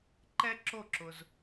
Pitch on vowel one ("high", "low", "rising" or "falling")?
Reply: high